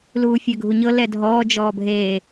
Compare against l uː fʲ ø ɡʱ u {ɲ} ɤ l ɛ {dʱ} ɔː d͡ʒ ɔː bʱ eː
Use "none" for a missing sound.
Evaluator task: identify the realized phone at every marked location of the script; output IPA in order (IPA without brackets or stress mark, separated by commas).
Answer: ɲ, dʱ